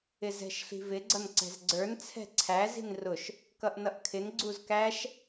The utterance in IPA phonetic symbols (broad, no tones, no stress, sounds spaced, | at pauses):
ɪ z ɛ̤ ʃ ɬ i̤ v ɪ ɡ͡ǀ ʌ n ǀ ɛ̤ z ɡ͡ǀ ə˞ n t͡sʰ ɛ̤ ǀʰ æ z i̤ n r ʊ ʃ | k ʌ ʔ n ʌ ʔ kʰ ɪ n ɡ͡ǀ u z k æ ʃ